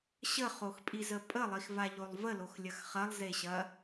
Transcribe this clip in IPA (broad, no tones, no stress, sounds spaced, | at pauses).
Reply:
ɕ ə χ o x pʼ i z ə pʼ ə lˠ i x v a ʎ o lˠ v ə l o x lʲ ɐ x χ ɐ lˠ z e ɕ ɐ